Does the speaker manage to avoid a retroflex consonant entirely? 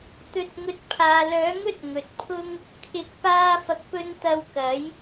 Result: yes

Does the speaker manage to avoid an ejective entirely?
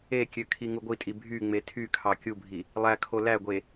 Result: no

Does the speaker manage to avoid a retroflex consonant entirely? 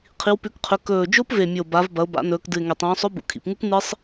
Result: yes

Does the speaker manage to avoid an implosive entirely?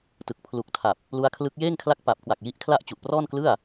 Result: yes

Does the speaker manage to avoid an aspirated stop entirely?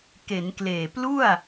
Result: yes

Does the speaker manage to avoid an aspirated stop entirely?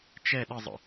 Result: yes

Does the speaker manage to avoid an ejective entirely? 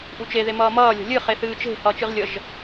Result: yes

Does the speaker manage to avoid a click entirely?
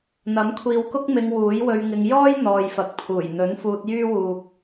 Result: yes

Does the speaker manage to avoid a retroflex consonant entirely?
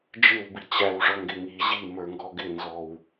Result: no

